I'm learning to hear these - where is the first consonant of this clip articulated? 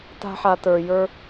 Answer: tongue tip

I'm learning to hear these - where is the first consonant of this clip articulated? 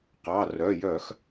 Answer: uvula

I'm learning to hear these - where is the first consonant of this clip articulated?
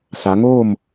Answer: tongue tip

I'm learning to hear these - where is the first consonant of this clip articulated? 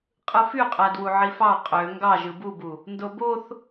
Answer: uvula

